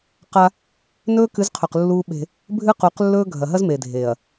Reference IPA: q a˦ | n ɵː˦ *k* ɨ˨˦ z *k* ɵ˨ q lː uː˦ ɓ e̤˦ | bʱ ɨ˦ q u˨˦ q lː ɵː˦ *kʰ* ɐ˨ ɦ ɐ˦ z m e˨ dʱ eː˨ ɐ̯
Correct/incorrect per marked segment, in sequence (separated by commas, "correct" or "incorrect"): correct, incorrect, incorrect